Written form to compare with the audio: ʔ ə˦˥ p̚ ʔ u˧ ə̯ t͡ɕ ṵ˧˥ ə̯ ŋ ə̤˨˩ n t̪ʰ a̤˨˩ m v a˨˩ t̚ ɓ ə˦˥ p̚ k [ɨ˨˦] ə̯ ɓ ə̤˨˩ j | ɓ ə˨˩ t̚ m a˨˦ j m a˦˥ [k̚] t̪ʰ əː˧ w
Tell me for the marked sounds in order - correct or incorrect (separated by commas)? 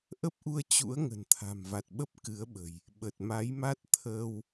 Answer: correct, incorrect